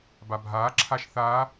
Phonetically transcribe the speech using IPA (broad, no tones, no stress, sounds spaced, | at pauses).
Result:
b a bʱ aː ǁʰ a ʃ θ aː